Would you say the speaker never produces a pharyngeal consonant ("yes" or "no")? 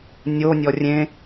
yes